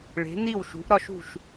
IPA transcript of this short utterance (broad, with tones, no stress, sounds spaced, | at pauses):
ɭ e̤˩˧ n i˧˩ w ʃ ṳ˩˧ ʔ ɾ ɒ˧ ʃ ṳ˧˩ ʃ